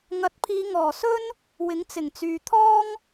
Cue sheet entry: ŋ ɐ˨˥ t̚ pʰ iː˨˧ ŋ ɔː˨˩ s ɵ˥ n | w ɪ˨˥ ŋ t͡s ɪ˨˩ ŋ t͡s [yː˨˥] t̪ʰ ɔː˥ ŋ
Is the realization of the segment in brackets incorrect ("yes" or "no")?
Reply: yes